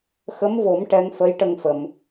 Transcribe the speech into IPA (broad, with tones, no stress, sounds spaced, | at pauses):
x ə˧˥ m v o˨˩˦ m ʈ ɛ˧˥ ŋ f ə˧˥ j ʈ ə˧ ŋ f ə˨˩˨ m